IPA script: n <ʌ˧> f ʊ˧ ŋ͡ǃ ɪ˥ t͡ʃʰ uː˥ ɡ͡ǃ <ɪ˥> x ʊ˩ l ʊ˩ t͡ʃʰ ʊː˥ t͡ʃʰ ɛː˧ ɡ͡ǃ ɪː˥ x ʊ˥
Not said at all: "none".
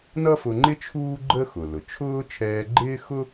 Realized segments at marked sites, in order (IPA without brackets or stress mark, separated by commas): ʌ˥, ə˥